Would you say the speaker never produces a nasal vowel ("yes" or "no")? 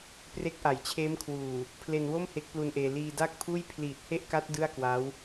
yes